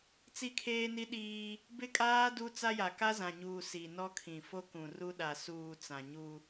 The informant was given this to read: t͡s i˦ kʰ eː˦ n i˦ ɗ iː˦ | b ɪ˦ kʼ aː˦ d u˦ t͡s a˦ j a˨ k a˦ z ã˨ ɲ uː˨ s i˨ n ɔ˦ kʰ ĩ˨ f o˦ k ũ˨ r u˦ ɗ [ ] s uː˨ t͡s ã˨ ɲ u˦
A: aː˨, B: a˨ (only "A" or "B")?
B